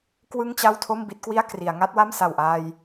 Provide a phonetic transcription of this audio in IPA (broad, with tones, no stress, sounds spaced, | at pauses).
k w ɯ˥˩ ŋ t͡ɕ a˥˩ w tʰ o˥˩ m b i˦˥ t̚ k w i˥˩ a̯ k r i˩˦ a̯ ŋ a˦˥ t̚ w a˥˩ m s a˨˩ w ʔ aː˧ j